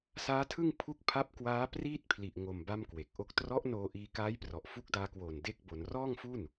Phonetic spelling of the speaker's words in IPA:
s aː˦˥ tʰ ɯ˥˩ ŋ pʰ u˦˥ k̚ pʰ a˦˥ p̚ k w aː˦˥ p r iː˥˩ t̚ pʰ l i˨˩ ʔ ŋ o˨˩ m b a˥˩ m k w e˨˩ k̚ ʔ o˥˩ k̚ t r ɔ˦˥ ʔ n oː˧ ʔ iː˧ k aː˦˥ j p r ɔ˨˩ ʔ f u˦˥ k̚ d aː˧ k w oː˨˩ n d e˥˩ k̚ b o˩˦ n r ɔː˥˩ ŋ f u˥˩ n

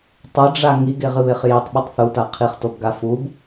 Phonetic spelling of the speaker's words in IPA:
tˤ ɐ ɖ͡ʐ a ŋ i ɡ e ʁ ɨ β e χ j i tˤ ɓ u tˤ θ u t a qʰ i χ t o b ɡ a f u b

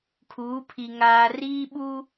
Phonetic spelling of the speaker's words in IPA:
kʰ uː˨˦ pʰ i˨ ŋ aː˨ r iː˦ ɓ uː˦

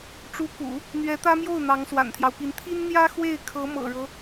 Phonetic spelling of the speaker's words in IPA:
ʈ͡ʂ u˧˥ k ṵ˨˩˦ | n̪ ɥ ɛ˧˥ t̪ ä˥ m j o˥˩ ʊ̯ n̪ ɑ˧˥ ŋ s w a̰˨˩ n t̪ʰ j ɑ˦ ʊ̯ p i˧˥ n t̪ʰ i˥ n n̪ j ä˥ x w e˥˩ ɪ̯ kʰ ɤ˧˥ m ɤ̰˨˩ ɻ ɤ˦

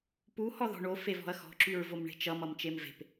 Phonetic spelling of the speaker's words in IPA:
p u h ɔ ð ɔ̤ ɳ o f e v ɔ̤ ɐ̯ x ɔ̤ ǁ y ɹ v o m ɳ e̤ t͡ʃ ʌ m ʌ m t͡ʃ e m v e̤ p

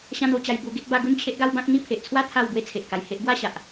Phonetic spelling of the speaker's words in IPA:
ɕ ã˥˧ n̪ o˥˧ t͡ɕ a˧ j b u˧ ɡ e˦ t̚ b a˥˧ ɡ u˥˧ n t͡ɕʰ e˦ ʔ ɡ a˦ w b ã˦ k̚ n̪ i˦ pʰ e˨ ʔ t͡sʰ w a˥˧ t̪ʰ a˥˧ w b w e˥˧ t͡sʰ e˨ ʔ k a˨˩ j h e˦ ʔ ɡ w a˥˧ ɕ a˨ ʔ

